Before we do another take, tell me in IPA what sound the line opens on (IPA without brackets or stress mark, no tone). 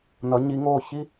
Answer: n